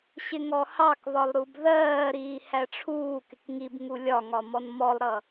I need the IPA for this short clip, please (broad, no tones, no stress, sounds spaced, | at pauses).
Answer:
ɕ ɪ ŋ ɔ h ɑ k β ɒ lˠ ɾ u b ð ɜː ɾ iː h æ ʈ͡ʂʰ uː k ɪ k ŋ i b ŋ u lʲ ɒ ŋ ɒ m ɔ n m ɔ lˠ ɾ ʌ